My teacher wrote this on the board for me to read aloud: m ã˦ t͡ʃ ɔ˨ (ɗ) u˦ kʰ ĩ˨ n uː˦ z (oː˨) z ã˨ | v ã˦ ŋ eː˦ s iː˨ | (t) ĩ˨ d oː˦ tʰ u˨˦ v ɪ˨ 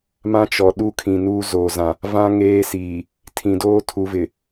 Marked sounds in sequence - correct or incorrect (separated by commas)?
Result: correct, correct, incorrect